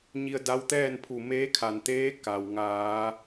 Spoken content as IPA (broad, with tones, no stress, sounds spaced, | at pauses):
ɲ i˧ ə̯ d a˧˥ w t̪ ɛː˥˨ n pʰ u˧˩ m eː˧˥ kʰ a˩ n t̪ eː˧˥ k a˩ w ŋ aː˩˧